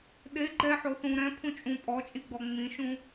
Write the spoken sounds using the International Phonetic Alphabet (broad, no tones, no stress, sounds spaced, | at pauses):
ɗ e ɡ͡ǃ ɛ ħ o θ ũ ɾ ɛ̃ pʰ ũ t͡ʃʼ ũ pʼ ɔ t͡ʃʼ i ɡ͡b ɔ ŋ͡m ĩ ʃ ũ